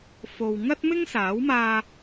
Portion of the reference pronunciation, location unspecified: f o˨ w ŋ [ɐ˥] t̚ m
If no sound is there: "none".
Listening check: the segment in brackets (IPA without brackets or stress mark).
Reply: ɐ˥